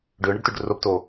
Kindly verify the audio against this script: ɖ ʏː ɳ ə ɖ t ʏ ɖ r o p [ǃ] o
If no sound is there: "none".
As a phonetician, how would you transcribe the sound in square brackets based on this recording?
t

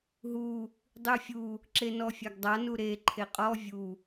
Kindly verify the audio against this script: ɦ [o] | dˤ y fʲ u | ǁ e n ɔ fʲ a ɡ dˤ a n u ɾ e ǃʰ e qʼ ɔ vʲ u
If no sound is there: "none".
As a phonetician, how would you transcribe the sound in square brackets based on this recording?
u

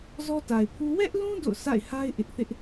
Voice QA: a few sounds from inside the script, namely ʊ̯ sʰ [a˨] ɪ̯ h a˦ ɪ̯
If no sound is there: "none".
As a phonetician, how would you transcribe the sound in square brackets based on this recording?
a̰˦˨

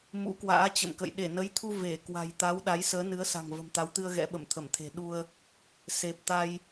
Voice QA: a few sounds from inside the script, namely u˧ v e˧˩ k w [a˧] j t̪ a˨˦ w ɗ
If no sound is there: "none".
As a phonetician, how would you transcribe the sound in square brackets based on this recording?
a̤˨˩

